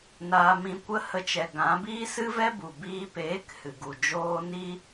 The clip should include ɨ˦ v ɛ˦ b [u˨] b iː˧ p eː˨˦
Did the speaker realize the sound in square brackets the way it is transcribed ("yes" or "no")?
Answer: yes